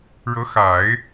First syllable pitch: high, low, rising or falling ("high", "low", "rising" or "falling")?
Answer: rising